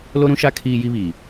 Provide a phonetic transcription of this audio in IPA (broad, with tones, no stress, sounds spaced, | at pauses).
l o˦ ɾ ũ˦ ʃ a˦ kʰ iː˦ j i˦ β iː˨